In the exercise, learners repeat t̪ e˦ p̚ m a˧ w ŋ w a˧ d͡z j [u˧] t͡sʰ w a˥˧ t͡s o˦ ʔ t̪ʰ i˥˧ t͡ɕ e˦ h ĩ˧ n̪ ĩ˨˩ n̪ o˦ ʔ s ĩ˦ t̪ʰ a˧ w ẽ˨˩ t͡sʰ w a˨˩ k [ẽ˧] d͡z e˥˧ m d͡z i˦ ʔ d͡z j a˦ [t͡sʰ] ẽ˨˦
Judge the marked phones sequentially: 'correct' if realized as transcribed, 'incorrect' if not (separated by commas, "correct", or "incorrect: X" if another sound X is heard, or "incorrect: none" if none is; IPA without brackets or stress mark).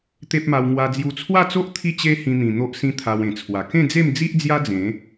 correct, incorrect: ẽ˥˧, incorrect: d͡z